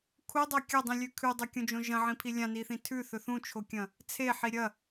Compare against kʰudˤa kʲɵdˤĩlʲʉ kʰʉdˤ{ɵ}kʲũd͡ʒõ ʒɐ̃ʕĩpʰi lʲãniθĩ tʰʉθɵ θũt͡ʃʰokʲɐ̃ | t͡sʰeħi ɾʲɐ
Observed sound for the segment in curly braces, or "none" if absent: ɵ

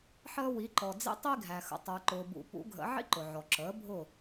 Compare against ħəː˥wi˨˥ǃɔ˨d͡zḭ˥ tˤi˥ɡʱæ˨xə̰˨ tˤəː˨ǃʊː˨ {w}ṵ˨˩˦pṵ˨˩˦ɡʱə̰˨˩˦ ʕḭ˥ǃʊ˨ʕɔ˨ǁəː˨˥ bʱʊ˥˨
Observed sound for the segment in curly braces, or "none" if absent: b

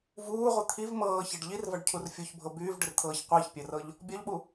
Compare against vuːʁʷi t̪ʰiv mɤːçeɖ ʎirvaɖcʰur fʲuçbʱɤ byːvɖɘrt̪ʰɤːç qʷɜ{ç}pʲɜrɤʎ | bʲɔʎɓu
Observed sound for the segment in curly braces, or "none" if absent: ç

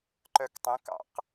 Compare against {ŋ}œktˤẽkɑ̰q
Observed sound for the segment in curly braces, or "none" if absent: ǃ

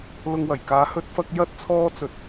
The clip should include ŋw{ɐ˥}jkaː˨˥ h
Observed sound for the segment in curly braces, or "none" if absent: ɐ˨˩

